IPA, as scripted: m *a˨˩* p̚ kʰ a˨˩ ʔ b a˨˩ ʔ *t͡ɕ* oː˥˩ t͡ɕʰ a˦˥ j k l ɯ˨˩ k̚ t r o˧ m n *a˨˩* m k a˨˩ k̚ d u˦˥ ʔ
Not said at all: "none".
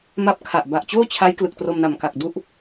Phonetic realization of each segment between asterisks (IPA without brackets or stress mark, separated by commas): a˦˥, t͡ɕ, a˨˩